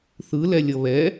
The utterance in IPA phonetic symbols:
θɯlɛ lʲʌβɛ

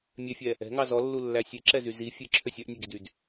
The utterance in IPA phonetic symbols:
mʲefʲɛ | ɛ̤ŋɑ zɔlːulːæ sʲeǁɛzy zi fʲeǁʰøsʲ œʔnʲœɡidyd

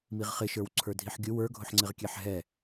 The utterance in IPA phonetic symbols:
miʁχɪʃə˞w ǀʰə˞dʱiħɡʲʊ wə˞ɡʱʊħŋ͡ǀɪʁkʲɛħ ɦɛ

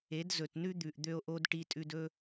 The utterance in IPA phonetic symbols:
e˨˦d zɵ˨tnʉ˦d̪ʉ˨ʔ d̪ø˦o̯ʔo˦d ʈi˧tʼʉ˧d ɵ˦

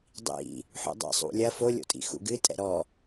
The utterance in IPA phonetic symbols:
dˤḭ | ħṵdˤɛ̰sˤṵlʲɐ folʲo̰tʼḭ xṵɡɨ tʼɛ̰ɾɔ

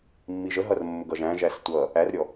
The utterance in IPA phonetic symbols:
mːiʒəɦʌr mːʊɡʌʒæ̃ʒæs tʷʌ | ærɾʲɔ

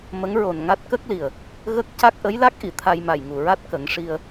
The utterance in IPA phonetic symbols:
mə˧˥ŋɹo˨˩n ŋa˦˥t̚ kə˦˥k̚li˨˩ə̯ | ɣə˦˥k̚ ca˦˥k̚ʔə˧˥jla˦˥k̚ʔi˨˩˨ t̪ʰa˧jma˨˩jŋu˨˩ɹa˦˥t̚ kə˨˩˦ŋʂi˧ə̯

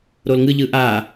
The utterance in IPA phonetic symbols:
ɾolŋɯ ʎɯʔa

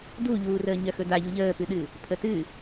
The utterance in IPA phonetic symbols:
duʎuːrəː ɲœxɵdaʎu ʎəːpɨɗɨ | pʰətɨ

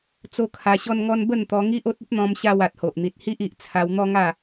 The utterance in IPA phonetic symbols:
t͡so˦kʰa˧ɕɔ˦nŋɔ˦n bə˥˧nt̪ɔ˧ŋi˦ʔ o˦t̚ə˦p̚n̪ɔ̃˧mɕa˧w a˨t̚ho˨ʔn̪i˨t̚hi˦ʔ i˨ʔt͡sʰa˧wn̪ɔ˦ŋa˥˧

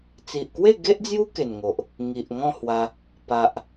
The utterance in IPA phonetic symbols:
t͡si˨ʔkwe˥˧ɡe˦ʔd͡zju˦ ke˨˩nŋo˨ʔ | ŋi˨ʔ ŋɔ̃˥˧hwa˧ | pa˨ʔ

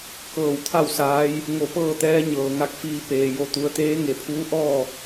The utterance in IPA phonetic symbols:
kɤː˧˩wt̪ʰa˥˨wsaː˧˥j | ŋo˧˩pɤː˥˨t̪ɛː˧˥ ɲɤː˩ŋa˥˨k̚fiː˧ peː˩ jo˧˩t̪u˩˧ə̯t̪eː˧˥ ŋe˩pʰuː˧˥ ʔɔː˥˨

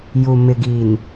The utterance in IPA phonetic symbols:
ju˨ mɪ˨ɡi˨n

